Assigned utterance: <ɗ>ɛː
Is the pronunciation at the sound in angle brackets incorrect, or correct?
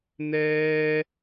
incorrect